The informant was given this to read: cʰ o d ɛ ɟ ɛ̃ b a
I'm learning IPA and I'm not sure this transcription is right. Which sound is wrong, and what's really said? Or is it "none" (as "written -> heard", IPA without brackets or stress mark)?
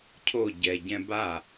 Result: d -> ɟ